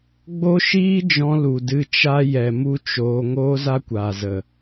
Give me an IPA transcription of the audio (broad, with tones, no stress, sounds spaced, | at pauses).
ɡ͡b o˦ ʃ iː˦ d͡ʒ ɔ̃˧ l u˨ d ɨ˧ t͡ʃ a˦ j ɛ˨ m u˦ t͡ʃ oː˧ ŋ oː˦ z a˦ kʷ aː˨ z ə˨